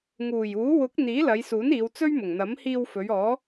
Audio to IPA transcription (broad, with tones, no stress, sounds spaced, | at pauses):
ŋ uː˨˩ j uː˨˥ w ʊ˨˥ k̚ n̪ iː˨˥ l ɐ˨˧ j s uː˨˥ n iː˨˧ w t͡s ɵ˥ ɥ m ʊ˨˩ ŋ n̪ ɐ˨˥ m h iː˧ w f ɵ˨˧ ɥ ɔː˨˧